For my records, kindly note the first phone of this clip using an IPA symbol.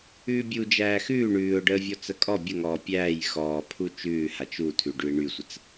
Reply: ʉː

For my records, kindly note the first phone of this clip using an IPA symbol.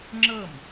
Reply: ŋ͡ǁ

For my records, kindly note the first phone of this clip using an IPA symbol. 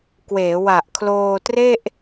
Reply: k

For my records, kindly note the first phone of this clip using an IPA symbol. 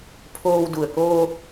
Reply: pʰ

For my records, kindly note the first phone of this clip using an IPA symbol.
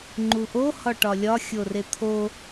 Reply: ŋ͡ǃ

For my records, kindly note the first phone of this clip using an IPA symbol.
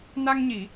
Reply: n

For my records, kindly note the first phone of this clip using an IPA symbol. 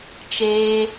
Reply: t͡ʃ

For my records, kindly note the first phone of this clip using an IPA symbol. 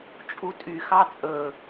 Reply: t͡ʃʼ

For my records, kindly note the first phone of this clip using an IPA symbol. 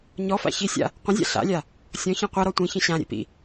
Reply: ɲ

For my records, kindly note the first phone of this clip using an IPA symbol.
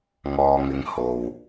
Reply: ŋ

